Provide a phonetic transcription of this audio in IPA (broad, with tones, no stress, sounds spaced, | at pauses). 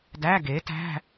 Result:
d æ˧˥˧ ɡ e˩˥ t æ̤˧˥˧